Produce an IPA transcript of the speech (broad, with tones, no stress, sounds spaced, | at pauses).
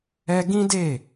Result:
ɛ˦ ɡ ĩ˦ d e˦˨